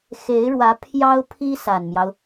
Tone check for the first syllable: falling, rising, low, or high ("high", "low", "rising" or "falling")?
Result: rising